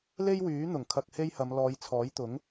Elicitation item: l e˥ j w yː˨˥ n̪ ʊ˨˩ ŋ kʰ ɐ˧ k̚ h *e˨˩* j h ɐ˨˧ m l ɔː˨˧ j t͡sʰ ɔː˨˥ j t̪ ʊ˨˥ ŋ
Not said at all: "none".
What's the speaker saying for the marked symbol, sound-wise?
e˥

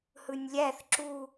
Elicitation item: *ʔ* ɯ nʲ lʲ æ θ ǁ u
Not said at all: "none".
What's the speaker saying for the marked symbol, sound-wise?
h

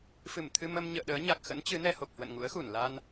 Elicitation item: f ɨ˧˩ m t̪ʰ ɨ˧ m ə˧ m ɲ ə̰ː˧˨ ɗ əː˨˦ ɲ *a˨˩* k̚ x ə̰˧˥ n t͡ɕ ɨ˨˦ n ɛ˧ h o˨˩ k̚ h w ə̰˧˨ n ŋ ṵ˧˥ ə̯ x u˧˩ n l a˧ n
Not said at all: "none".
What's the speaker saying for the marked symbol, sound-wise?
a˨˩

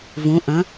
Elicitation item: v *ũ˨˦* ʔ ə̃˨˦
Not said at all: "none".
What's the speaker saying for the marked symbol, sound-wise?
ũ˨˦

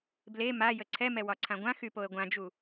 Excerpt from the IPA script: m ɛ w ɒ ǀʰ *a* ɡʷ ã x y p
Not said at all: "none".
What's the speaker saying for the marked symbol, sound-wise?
ã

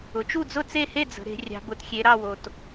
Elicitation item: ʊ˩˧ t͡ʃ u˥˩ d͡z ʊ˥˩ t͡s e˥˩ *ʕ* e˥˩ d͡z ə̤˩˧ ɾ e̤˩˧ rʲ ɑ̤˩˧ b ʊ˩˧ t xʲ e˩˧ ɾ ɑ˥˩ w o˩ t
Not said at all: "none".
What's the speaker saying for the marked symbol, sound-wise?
h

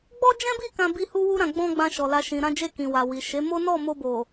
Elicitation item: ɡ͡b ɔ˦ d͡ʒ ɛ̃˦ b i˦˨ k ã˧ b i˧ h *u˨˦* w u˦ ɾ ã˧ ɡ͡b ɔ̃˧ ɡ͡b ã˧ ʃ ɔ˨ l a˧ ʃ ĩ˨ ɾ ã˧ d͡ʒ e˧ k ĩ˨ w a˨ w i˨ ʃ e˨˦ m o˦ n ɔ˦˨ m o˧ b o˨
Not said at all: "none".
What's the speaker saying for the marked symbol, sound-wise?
u˦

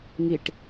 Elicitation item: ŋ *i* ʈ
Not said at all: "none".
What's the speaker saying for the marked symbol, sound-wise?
i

